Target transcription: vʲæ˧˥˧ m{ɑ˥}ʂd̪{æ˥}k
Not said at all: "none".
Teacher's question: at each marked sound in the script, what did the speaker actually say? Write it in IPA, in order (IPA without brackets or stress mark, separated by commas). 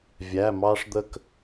ɑ˥, ə˥